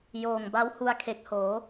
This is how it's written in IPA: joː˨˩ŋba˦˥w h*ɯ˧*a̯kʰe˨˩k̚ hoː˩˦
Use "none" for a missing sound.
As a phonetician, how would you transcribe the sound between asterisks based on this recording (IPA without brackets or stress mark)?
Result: u˧